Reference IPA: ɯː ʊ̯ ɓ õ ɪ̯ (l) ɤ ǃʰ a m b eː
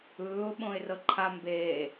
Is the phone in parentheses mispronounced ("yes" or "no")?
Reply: yes